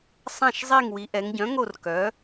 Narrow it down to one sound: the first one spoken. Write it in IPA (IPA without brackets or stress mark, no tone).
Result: sˤ